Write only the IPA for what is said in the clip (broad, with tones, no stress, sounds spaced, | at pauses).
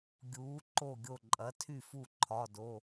ɡʲ uː˩˥ ǃ o˥˩ ɡʲ o˥˩ ǃʼ ɐ˩˥ tʰ y˥˩ f u˥˩ ǃʰ ɒ˩˧˩ d o˩˧˩